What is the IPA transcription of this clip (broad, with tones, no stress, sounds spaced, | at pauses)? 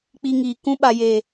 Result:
k͡p i˧ ŋ iː˨ k ũ˧ ɓ a˨ j eː˨